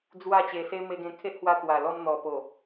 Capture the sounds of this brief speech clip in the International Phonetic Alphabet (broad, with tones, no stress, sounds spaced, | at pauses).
d͡z w a˥˧ t͡ɕ e˧ s e˦ m e˧ ɡ ẽ˧ kʰ e˦ ʔ h w a˧ t̪ w a˨˩ l ɔ˧ m n̪ ɔ˨˩ p o˨˩